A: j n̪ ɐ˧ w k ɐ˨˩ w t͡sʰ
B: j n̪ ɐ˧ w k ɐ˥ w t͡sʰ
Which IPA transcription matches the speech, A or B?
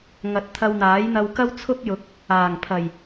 B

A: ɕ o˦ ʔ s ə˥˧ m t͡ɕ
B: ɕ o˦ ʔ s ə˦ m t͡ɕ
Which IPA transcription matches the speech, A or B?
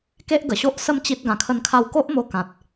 B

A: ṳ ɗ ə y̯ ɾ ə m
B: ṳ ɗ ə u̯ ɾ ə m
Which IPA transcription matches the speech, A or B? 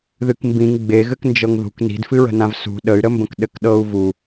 A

